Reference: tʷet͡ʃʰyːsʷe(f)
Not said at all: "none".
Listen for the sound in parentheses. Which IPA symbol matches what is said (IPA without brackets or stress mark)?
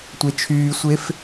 f